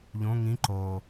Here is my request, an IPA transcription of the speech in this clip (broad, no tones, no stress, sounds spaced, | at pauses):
ʎ õ ŋ ĩ ǃ o